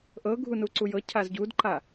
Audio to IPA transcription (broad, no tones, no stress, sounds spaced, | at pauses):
ʔ ɤ ɡʱ u n u ǀ u j ɤ cʰ a z ɟ u d ǃ a